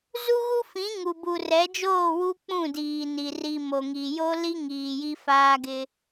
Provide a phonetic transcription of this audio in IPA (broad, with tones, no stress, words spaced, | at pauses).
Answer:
zu˦ɣu˦ fĩ˨˦ŋu˨ bu˨rɛ˨˦d͡ʒoː˦˨ wu˦k͡pũ˦˨diː˨ni˨ ri˨ mo˨ŋi˨jo˦ li˦ ŋiː˨ji˦faː˦ɡɪ˦